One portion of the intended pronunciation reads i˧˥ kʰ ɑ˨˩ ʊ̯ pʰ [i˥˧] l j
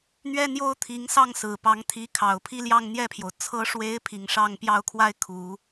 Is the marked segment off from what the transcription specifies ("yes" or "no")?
no